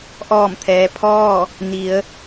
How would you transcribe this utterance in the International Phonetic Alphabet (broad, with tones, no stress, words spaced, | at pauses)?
ʔɔː˧˩mt̪ʰɛː˩ pʰɔː˥˨ | ni˩˧ə̯